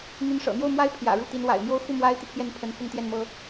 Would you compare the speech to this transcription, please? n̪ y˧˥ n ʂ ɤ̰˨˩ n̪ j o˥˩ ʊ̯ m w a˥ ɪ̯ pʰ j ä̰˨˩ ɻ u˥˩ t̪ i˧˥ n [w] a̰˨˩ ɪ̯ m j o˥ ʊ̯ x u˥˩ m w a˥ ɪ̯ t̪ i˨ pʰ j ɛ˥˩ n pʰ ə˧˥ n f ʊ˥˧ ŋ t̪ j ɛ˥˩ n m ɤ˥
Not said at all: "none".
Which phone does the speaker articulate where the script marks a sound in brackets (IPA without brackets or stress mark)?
w